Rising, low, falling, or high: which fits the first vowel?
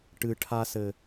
low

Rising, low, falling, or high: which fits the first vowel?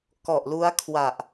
low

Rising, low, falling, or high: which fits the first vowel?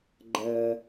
low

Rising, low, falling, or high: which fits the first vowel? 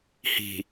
low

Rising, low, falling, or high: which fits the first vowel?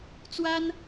high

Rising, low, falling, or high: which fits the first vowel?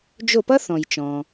falling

